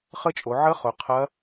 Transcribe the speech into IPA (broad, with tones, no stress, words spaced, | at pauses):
χə˦˥t͡ʃʼo˨˦ʕə˦˥χʊ˨˦ qʰɐ˦˥